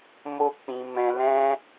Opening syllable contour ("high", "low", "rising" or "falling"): high